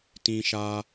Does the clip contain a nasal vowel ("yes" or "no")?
yes